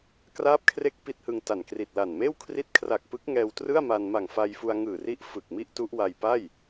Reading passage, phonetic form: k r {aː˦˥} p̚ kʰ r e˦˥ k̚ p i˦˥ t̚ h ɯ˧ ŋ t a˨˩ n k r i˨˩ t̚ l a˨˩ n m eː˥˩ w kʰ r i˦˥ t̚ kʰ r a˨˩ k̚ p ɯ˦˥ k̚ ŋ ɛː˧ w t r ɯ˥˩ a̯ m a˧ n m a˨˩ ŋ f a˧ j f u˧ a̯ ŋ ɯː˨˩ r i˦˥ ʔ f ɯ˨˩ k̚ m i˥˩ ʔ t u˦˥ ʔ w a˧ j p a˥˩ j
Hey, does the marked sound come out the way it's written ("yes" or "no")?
yes